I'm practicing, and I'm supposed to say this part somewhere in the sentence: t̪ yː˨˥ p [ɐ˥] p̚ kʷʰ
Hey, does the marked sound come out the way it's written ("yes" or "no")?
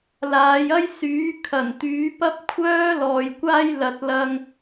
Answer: yes